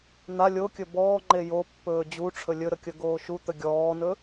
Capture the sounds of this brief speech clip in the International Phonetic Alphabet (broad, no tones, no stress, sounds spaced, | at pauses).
n̪ a lʲ o kʲ ɵ b ɔː ŋ͡ǃ e j o pː ɵː d͡ʑ u ʈ͡ʂʰ ɵ lʲ ɵ ɾ ə kʲ ə ɡ oː ʃ u t̪ ə ɡʲ ɔː n ɵ